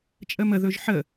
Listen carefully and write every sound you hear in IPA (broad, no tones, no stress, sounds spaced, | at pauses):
t͡ʃʼ ə m ə ð ɵ ʒ ħ ə